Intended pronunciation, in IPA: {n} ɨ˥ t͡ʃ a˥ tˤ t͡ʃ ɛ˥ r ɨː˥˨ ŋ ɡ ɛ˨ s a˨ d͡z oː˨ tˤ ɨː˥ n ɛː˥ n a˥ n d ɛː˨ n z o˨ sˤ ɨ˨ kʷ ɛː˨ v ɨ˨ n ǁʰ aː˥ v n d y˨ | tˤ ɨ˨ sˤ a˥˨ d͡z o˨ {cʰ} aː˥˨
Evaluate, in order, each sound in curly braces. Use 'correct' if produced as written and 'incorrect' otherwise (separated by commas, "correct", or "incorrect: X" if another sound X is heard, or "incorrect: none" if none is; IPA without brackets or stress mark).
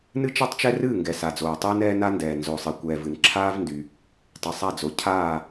correct, correct